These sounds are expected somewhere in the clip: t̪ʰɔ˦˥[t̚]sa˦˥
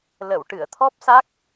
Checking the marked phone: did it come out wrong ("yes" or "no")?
yes